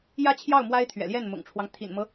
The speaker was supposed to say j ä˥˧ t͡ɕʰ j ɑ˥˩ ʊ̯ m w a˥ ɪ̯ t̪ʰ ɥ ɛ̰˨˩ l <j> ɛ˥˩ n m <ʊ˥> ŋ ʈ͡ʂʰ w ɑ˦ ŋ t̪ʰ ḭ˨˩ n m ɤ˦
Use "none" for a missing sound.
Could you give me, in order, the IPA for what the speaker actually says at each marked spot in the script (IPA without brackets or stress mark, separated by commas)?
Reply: j, ʊ̰˨˩